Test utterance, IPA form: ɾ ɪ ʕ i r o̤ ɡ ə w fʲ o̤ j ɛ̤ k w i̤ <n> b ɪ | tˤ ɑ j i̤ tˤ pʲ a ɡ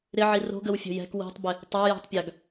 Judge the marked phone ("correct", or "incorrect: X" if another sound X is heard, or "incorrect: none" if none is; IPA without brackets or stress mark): incorrect: tˤ